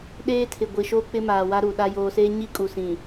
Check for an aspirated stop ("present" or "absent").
present